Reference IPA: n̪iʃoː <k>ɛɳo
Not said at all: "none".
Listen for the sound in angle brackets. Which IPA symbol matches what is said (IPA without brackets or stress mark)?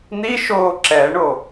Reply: ǁ